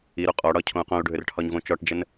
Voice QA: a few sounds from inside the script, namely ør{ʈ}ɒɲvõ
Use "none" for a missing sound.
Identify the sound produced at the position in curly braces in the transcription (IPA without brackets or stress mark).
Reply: ʈʰ